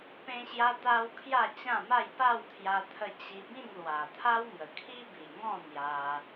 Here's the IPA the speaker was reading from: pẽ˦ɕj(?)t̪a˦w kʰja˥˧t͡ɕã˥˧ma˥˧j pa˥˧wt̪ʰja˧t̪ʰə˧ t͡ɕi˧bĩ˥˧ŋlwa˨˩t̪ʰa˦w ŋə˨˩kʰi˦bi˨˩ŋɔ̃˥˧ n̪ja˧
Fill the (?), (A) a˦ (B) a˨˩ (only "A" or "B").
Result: A